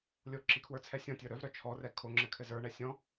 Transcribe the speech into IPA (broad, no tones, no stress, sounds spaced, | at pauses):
lʲ o ǁ i kʰ w ə˞ t͡sʰ ɛ sʲ ɔ̃ tʲ ə˞ ɾ œ v ɾ œ t͡ʃʰ ɔ r ɛ kʰ o ŋ͡ǁ ɘ kʰ ɘ z ə˞ ɳ ɛ sʲ ɔ̃